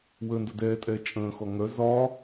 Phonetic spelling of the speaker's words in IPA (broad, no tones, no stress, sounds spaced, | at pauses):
w ə n d ə d ɛː tʼ ɛː t͡ʃʼ ə̃ː x ɔ ŋ œ z ɒ